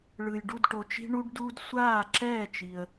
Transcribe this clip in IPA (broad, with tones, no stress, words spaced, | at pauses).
ɭɯ˩jɖu˥˩d ʈo˩t͡ʃi̤˧ɳu˧ɖduː˧d sʷaː˥˩ǁɛː˥˩t͡ʃi˩ə̯